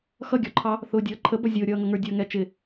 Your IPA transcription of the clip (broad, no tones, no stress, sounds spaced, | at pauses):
x ʌ ɡʲ ɔ ǃʰ ɑ | θ ʊː dʲ ʌː ǃʰ ə b ʌ zʲ ʊː ɾʲ ʌː ŋ ʌ ŋ ə˞ dʲ ʌː ŋ ɛ t͡ʃ ɪ